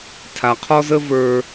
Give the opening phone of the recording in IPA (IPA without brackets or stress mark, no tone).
tʰ